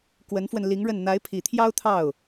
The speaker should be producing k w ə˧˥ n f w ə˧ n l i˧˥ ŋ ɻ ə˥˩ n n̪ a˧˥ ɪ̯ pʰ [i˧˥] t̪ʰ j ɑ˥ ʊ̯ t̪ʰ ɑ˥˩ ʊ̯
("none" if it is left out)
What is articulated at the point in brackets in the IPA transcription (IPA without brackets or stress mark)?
i˨˩